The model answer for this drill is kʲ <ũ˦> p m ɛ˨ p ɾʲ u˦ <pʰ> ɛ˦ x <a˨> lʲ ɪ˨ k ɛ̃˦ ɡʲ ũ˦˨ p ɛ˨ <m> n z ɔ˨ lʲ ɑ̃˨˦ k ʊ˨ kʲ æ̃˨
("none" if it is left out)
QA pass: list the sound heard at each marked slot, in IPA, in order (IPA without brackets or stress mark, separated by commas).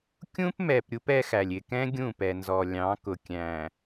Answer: ũ˦, p, æ˨, none